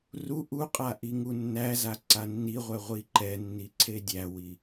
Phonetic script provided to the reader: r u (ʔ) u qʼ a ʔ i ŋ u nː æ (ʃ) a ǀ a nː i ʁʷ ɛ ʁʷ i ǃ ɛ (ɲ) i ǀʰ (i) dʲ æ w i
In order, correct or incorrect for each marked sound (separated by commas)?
correct, incorrect, incorrect, incorrect